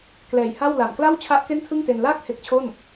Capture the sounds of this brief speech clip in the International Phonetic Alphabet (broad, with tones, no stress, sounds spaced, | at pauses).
k l ɛː˨˩ j h a˥˩ w l a˨˩ m k l a˥˩ w t͡ɕʰ a˦˥ ʔ k e˥˩ n tʰ ɯ˥˩ ŋ t e˧ n l aː˥˩ k̚ h e˦˥ k̚ t͡ɕʰ o˥˩ n